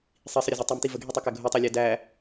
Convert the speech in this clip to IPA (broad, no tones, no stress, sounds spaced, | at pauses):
sˤ i sˤ ə ɾʲ ə z i tˤ i m t i v ə ɡʱ i tˤ ʌ k æ ɡʱ u tˤ ɑ lʲ æ d æ